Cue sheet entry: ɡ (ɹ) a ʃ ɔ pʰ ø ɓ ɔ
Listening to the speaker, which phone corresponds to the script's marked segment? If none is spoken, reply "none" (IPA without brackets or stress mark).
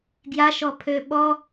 j